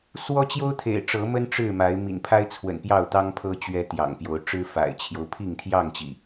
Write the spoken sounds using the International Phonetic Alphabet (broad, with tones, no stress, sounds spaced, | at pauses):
s w ɔ˦ t͡ɕ j o˦ ʊ̯ t̪ʰ ḛ˨˩ ɪ̯ ʈ͡ʂ ɤ˨˦ m ə˦ n ʈ͡ʂ ɻ̩˥˨ m a˨˦ ɪ̯ m ḭ˨˩ n pʰ a˦ ɪ̯ t͡sʰ w ə̰˨˩ n p j ɑ˥˨ ʊ̯ t̪ ɑ˦ ŋ pʰ ɤ˦ t͡ɕ ɥ ɛ˦ t̪ j ɑ̰˨˩ ŋ p j o˨˦ ʊ̯ ʈ͡ʂ ɻ̩˦ f a̰˨˩ ɪ̯ t͡ɕʰ j o˦ ʊ̯ pʰ i˥˨ ŋ t̪ʰ j ɑ˥˨ ŋ t͡ɕ ḭ˨˩